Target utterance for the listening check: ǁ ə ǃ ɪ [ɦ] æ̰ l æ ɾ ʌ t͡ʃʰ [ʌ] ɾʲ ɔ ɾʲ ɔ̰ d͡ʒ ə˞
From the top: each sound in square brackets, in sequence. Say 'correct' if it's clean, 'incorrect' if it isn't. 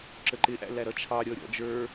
incorrect: ʔ, incorrect: ɑ

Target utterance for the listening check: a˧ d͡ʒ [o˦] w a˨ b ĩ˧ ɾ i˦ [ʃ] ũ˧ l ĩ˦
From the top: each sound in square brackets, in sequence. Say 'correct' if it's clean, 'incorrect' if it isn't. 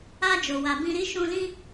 incorrect: o˨, correct

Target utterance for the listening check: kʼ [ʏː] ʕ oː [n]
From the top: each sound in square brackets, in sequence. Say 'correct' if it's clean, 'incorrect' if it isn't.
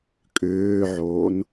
correct, correct

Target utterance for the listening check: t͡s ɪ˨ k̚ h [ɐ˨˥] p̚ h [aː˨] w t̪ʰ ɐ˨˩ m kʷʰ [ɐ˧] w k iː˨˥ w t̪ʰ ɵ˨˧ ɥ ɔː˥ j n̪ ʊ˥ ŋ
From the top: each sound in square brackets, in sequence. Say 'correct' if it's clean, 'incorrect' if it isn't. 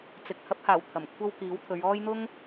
correct, incorrect: aː˨˩, incorrect: ɐ˥

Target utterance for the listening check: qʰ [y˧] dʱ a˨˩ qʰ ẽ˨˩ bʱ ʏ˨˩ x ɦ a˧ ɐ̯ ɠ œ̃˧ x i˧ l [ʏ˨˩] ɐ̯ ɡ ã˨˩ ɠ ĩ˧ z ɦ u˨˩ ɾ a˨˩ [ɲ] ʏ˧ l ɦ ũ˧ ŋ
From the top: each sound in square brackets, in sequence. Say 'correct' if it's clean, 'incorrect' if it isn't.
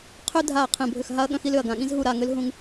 incorrect: ʏ˧, correct, incorrect: ŋ

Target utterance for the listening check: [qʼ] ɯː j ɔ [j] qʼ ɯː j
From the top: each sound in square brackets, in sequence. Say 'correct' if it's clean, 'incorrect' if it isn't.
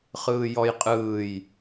incorrect: χ, correct

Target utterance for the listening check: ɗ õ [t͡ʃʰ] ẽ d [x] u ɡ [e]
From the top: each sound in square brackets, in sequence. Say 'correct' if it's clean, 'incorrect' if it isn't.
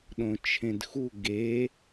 correct, correct, correct

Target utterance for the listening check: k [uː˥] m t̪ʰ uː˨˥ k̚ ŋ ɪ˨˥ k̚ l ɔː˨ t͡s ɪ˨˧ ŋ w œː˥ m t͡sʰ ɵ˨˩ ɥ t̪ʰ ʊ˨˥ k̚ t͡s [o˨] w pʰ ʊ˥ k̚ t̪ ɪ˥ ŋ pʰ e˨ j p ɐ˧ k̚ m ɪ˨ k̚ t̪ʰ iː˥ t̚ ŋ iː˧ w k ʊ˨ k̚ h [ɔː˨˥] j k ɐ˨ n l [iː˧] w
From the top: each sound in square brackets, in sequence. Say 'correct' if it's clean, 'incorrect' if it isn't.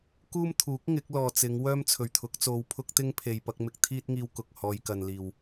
correct, incorrect: o˧, incorrect: ɔː˧, incorrect: iː˨˩

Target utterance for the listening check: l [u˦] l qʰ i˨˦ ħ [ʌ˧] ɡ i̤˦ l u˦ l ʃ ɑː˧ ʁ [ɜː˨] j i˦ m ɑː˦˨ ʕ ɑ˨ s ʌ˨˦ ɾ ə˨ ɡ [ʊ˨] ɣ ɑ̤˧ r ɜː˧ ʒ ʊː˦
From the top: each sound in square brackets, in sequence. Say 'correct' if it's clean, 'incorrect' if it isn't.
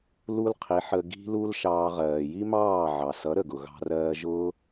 correct, incorrect: ə˧, correct, correct

